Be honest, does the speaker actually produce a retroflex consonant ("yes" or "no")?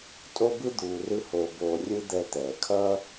no